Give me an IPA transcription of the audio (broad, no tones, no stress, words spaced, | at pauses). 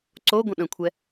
ǀo ɡʷə̃ɗə̃kʷʰɛ